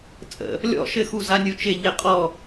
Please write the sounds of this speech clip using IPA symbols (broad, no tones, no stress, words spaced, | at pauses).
t͡sʼə̰ | lʲɔ̰ʃɘ xuzanʲut͡ʃɪ ʎɪqʼɔ